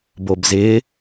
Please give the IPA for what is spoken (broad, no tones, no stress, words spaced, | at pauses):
bobzɪ